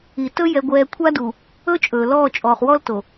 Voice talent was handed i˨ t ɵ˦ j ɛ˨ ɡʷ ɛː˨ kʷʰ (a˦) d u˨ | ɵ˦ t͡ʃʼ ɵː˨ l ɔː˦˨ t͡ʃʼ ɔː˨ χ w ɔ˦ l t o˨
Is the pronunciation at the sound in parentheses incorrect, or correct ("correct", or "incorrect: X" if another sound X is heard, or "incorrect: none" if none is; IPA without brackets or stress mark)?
correct